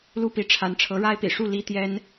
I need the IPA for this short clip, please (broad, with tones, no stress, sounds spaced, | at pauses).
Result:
l u˥ p i˧˥ ʈ͡ʂʰ a˧˥ n ʈ͡ʂʰ ɤ˧˥ ɻ a˥ ɪ̯ p ḭ˨˩ ʂ u˥˩ l i˥ t̪ j ɛ˥ n